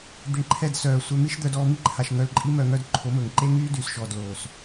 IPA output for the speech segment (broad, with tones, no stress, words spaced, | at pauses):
d̪i˨ɳǃʰɛ˦˨d sœː˨ sʷœ˧mi˦ʃd̪œ˧d ɔː˧mi˦ǃʰa˨ʃ ŋœ˧lǃʼi˦mœ˧ ŋœ˧dǃʰo˨˦mɵː˨ŋǃe˦ ŋyː˦dyː˨sʃɔː˨d loː˨s